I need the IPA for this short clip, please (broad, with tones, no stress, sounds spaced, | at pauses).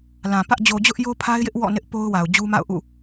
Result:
l ã˨ p ä˦ ʔ d͡ʑ o˨ d͡ʑ ʊ˦ ʔ j o˦ pʰ a˦ ɪ̯ j ɪ˦ ʔ w ɔ̰˦˨ n ɪ˦ ʔ p o˦ ʊ̯ w a˨ ʊ̯ d͡ʑ u˦ m a̰˦˨ ʊ̯ ʔ ṵ˦˨